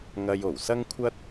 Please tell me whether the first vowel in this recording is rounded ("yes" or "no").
no